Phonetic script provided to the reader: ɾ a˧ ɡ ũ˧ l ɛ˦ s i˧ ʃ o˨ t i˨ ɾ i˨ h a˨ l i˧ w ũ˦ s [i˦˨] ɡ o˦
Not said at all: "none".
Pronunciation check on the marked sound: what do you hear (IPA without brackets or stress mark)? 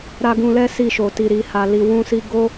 i˦